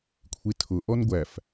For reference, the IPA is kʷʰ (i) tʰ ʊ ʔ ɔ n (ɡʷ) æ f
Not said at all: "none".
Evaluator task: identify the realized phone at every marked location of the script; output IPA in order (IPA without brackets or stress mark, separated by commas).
i, ɡʷ